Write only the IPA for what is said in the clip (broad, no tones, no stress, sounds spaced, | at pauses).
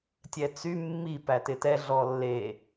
tʲ ɛ t͡s y mː i p æ t ɪ t ɛ ɮ ɔ lː e